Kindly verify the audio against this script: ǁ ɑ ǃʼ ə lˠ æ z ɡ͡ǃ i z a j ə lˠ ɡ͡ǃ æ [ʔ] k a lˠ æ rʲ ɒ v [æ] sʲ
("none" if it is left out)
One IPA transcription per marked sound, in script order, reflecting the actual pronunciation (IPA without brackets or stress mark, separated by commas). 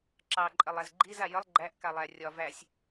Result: ʔ, æ